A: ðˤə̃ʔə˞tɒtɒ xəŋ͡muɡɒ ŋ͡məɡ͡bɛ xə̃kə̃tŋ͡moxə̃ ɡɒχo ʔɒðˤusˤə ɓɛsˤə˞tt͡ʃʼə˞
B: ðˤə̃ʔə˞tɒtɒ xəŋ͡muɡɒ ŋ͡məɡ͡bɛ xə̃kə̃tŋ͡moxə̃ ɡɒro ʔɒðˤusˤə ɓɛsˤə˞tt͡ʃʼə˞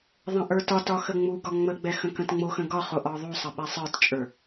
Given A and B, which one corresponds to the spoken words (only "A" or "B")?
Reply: A